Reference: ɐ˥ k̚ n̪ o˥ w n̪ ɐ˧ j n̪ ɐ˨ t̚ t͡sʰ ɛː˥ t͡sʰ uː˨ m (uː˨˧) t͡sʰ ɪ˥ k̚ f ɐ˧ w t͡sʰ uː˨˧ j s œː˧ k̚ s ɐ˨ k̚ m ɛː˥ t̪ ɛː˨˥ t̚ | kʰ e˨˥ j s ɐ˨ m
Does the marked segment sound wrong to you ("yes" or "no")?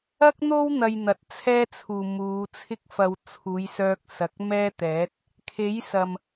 no